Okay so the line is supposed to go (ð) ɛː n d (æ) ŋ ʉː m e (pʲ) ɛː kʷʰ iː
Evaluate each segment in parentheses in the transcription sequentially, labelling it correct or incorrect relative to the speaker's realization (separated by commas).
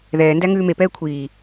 correct, correct, incorrect